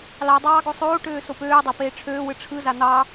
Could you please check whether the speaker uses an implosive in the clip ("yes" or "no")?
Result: no